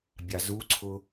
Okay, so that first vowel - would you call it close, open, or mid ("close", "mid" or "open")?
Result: open